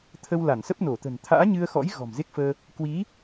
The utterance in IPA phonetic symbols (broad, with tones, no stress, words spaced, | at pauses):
t̪ʰə˧w la˧˩nsə˦˥p̚no˧˩t̪ə̤˨˩n t̪ʰa̰ː˧˥ɲɨ˧ə̯xɔ̰˧˥j ɣɔ̤˨˩mze˦˥k̚fəː˧ | kwi˨˦